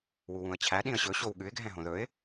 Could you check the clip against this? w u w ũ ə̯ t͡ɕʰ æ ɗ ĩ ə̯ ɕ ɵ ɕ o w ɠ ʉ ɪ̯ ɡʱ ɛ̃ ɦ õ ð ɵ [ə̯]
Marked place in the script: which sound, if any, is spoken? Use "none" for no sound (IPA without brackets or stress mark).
ɪ̯